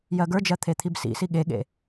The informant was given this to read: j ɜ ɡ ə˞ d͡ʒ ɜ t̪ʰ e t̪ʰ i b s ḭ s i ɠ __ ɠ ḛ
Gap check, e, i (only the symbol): e